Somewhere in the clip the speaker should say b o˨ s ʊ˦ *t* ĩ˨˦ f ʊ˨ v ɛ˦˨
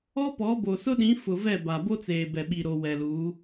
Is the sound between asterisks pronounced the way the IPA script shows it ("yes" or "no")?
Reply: no